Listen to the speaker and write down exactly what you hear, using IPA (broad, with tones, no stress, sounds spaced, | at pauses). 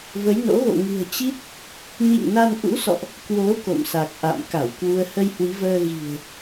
v ə˨˦ j n o̰˧˥ ɣ o̰˧˨ ŋ ɨ̤˨˩ ə̯ t͡ɕ i˦˥ t̚ | ɲ ḭ˧˨ ŋ n a˧ n ʔ ṵ˧˥ s ɔ̰˧˨ ʔ | k w o˨˦ k o̰˧˨ m s a˨˩ k̚ ʔ a̰˧˨ m k a˧˩ w k w u˧ ə̯ h ə˧ j h w i˨˦ v əː˧ ɣ i̤˨˩ ə̯